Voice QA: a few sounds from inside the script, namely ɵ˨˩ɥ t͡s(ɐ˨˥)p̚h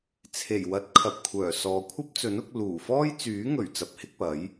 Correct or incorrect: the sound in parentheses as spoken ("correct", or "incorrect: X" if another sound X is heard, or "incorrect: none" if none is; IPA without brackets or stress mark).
correct